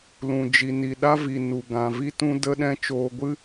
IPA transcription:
l ũ˨ d͡ʒ i˨ n i˨ ɗ a˧ v i˨ n u˨ ɡ ã˨ v i˧ t ũ˧ d ə˧ ɗ ɛ̃˧ t͡ʃ oː˧ ɡʷ ɨ˦

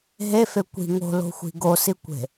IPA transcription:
ɦ e f e kʷ i̤ ŋ o̤ l o̤ xʷ i̤ ɡ o s i kʷ e̤

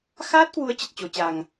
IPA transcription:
x aː˦˥ t̚ k w u˨˦ ə̯ t͡ɕ ə˨˩ t̚ t͡ɕ o˨˩ t͡ɕ a˨˩ ŋ

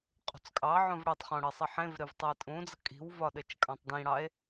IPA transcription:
qʼ ṳ t͡s kʼ ɑ ʕ õ v ɽ e tˤ χ õ ɽ ɘ sˤ i ħ ẽ v ɾ e v tˤ ɘ e̯ tʼ ũ d͡z ə kʼ i̤ w v ɒ ɗ ɘ t͡ʃ kʼ ɑ̃ tˤ d ĩ ɽ ɑ e̯

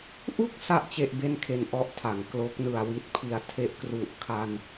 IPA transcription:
ʔ u˥˩ k̚ s a˥˩ ʔ t͡ɕ e˥˩ ʔ b e˥˩ n kʰ e˧ n ʔ ɔ˦˥ ʔ tʰ a˩˦ ŋ k l o˦˥ k̚ n ɯ˨˩ a̯ w i˦˥ t̚ pʰ i˩˦ a̯ tʰ e˦˥ ʔ k r u˨˩ ʔ kʰ a˧ n

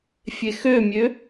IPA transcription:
fʲ e x ø mʲ ø

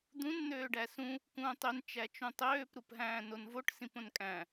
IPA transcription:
d̪ ũ n n̪ øː ɖ æ s ũ | k ũː tˤ ø n t͡ʃ æ t͡ʃ ũ tˤ øː p ɾ u p ɦ æ̃ː n o n v o ʈ s ĩ p õ n kʼ æ̃

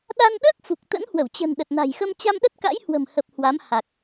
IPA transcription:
ɗ a˧ n ɗ əː˦˥ k̚ f u˨˩ k̚ t̪ ə̰˧˥ n h w ə˧˩ w t͡ɕ ə̤˨˩ n ɗ ə˨˩ t̚ n a̤˨˩ j x ə˧ m t͡ɕ a˧ m ɗ ə˦˥ t̚ k a̰˧˥ j h w ə̤˨˩ m h ə˨˩ p̚ h w a˨˦ m h a˨˩ k̚

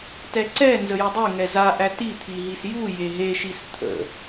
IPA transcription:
t ɛ ǀ ɛ n z ə j ə dˤ e ŋ ɛ z a ʔ æ t i t̪ʰ i ɦ i s j u j e ɦ e ʃ i s t̪ʰ ə̰

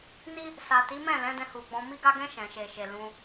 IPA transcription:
n i˦ | s a˨ t i˨˦ m ɛ̃˦˨ l ɛ̃˨˦ d ɛ̃˧ h u˨ ɡ͡b ɔ̃˧ m i˧ ɡ a˧ ɡ ɛ̃˧ ʃ ɛ̃˨ ʃ e˨ ʃ e˨ l ũ˧

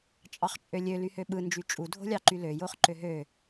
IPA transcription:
t͡ʃʼ ɑ χ t͡ʃʼ ø lʲ ø l y h ø ɓ ɯ n d͡ʒ y t͡ʃʼ u dʱ o̤ lʲ ɑ ǃ y l ø j o χ ǃ ø ɦ ø

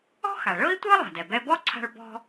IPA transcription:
ɔ̤˥ x a˩ ɭ ɤ˥ i̯ tʷ ɤ˥ lˠ a̤˩ d ɛ˩ b ɛ˧ b ɔ˥ ǀʰ a̤˧ ɭ b ɔ̤˧

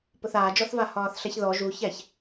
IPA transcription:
p ʊ θ aː d͡ʒ ɔ θ v a h ɒː θ ɬ ɛ ç ð ɔ ʒ u ç ɛ ç

